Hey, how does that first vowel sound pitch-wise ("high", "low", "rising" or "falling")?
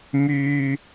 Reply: low